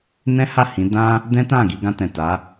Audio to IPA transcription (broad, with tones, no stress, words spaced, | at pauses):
nɛ̃˦ha˦˨ hĩ˨˦ dã˦ | dɛ̃˦tã˦˨ɡi˧ ɡã˧tɛ̃˨ta˨˦